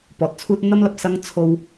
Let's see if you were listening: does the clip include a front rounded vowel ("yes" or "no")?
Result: no